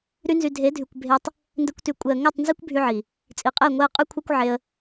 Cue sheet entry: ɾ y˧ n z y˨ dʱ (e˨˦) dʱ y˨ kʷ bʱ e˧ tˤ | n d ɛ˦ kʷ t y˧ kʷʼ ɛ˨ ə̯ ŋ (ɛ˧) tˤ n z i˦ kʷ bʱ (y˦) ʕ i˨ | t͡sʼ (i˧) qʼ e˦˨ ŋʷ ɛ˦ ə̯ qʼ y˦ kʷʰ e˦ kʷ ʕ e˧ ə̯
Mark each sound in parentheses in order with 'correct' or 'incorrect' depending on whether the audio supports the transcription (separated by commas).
correct, incorrect, correct, incorrect